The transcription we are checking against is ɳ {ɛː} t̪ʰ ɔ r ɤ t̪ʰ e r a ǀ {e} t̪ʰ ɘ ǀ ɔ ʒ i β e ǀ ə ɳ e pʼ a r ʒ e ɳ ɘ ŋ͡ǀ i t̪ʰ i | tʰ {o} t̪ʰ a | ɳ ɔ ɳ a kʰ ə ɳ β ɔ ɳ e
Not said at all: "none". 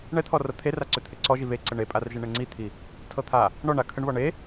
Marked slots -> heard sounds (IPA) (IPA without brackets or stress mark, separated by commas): ɛ, ø, ɤ